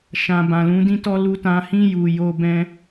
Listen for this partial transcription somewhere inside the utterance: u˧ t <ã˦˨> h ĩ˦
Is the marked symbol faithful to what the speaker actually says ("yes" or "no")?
no